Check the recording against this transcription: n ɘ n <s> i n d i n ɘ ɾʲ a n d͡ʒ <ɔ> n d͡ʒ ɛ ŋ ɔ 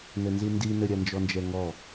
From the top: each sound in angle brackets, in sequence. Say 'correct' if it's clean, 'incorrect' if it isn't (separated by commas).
incorrect, correct